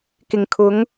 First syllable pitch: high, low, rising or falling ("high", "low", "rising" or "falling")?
low